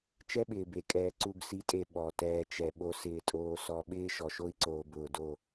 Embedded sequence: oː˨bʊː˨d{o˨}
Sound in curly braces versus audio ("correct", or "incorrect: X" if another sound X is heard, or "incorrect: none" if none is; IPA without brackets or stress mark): incorrect: o˦˨